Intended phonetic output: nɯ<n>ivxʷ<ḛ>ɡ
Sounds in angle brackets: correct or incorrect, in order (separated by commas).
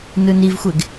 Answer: correct, incorrect